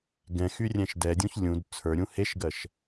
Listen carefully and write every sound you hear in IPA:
ɡ ɛ̃ x y rʲ ɛ̃ ʃ d ɛ dʲ ũ ç lʲ ũ d t͡sʰ ə˞ ɾʲ ũ h e ʃ ɡ ɜ ʃ

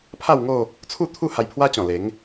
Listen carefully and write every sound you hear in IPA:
pʰ a˥˧ w ŋ o˥˧ | t͡sʰ u˥˧ t̪ʰ u˥˧ h a˧ j pʰ w a˦ t͡ɕ ɔ̃˨˩ l e˨˦ ŋ

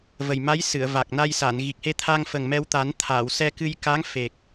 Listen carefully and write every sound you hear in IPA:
v ə˨˩ j m a˧˥ j s ɨ˨˩˨ ə̯ v a˨˩ k̚ n a˧ j s a˨˩˨ n ɣ i˨˩ k̚ h e˧ t̪ʰ a˧ ŋ f ə˨˩ ŋ m ɛ˧ w t̪ a˨˩˦ n t̪ʰ a˨˩˨ w s ɛ˧ k ɨ˧ j k a˧˥ ŋ f e˨˩ k̚

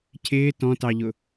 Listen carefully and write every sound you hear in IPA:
cʰ ɪː t ɔ̃ t ɑ ʎ ʊ

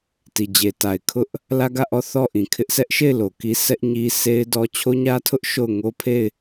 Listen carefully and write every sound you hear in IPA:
t i˨ d͡ʑ e˨ t a˨ ɪ̯ kʰ ʊ˦ ʔ | l ä˦ ɡ ä˦˨ ʔ ɔ˦˨ θ ɔ˦˨ ʔ ĩ˨ kʰ ɪ˦ ʔ sʰ ɛ˦ ʔ ʃ e˦˨ ɪ̯ l o˨ k i˦ s ɛ˦ ʔ ɲ i˦ sʰ e˦ ɪ̯ d ɔ˦ t͡ɕʰ o˦ ɲ ä˦ tʰ ʊ˦ ʔ ʃ o˦˨ ʊ̯ ŋ o˦ pʰ e˦˨ ɪ̯

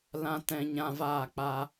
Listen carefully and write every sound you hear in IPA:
l ã˧ t ɛ̃˧ ɲ ã˧ v aː˦˨ k͡p a˧

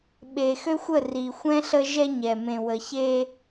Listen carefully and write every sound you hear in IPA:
ɓ e˨ x ø˦ xʷ ə˦˨ r i˨ xʷ ɛ̃˦ ɬ ə˦ ʒ ɛ˦ ɲ ɛ˨ m ẽ˨ w ə˨ ç e˦

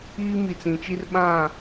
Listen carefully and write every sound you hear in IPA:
iː˦ m i˨ t͡s ĩ˨ t͡ʃ i˦ r ɓ ã˦˨

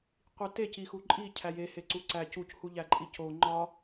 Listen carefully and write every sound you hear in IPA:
qʷ i t e c i x u ǃʼ i cʰ æ j e h e ǀ u ǀ æ c u c h u ʎ æ ǃʼ i c o ŋ͡ǃ ɒ

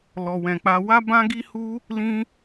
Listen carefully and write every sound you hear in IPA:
l ɔ˧ w ɛ̃˧ k͡p a˦ w a˦ b ã˦ ɡ i˦ h u˦ | l ĩ˦

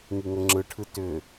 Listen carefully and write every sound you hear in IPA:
ŋ i ŋ ə ŋ͡ǁ ɯ ʈʰ ɯ t ʏ

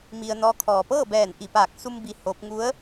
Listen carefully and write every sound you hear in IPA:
m i˧ ə̯ n ɔː˧˥ kʰ ɔː˩ p ɤː˥˨ b ɛː˧˩ n ʔ i˧˩ p aː˧˩ k̚ s u˧ m b i˧ h oː˧˥ p̚ ŋ u˧˥ ə̯

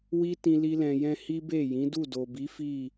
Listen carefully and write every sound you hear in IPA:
w i˦ t ĩ˧ l i˦ l ɛ̃˧ j ɛ̃˦ h i˦ b e˦˨ j ĩ˨˦ d u˦˨ d o˨ b i˨˦ f i˦˨

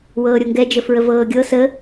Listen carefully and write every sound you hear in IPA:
w ɤː ɾʲ o ŋ ɡ ɛ d͡ʒ ə f ɹ ə v ɤː ɡʲ ɤ s ə

